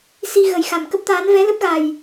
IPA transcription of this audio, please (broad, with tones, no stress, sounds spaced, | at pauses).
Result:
s i˧ ɣ ə˨˩ j x a˨˩ m k ə˦˥ p̚ t̪ aː˨˦ n v ɛ˨˦ l ə˦˥ p̚ ɣ a˨˩ j